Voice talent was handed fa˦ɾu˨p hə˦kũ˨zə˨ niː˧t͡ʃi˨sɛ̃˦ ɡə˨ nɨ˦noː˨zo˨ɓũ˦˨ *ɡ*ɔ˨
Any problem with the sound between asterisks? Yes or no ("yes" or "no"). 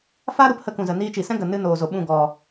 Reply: no